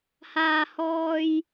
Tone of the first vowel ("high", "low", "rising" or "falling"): high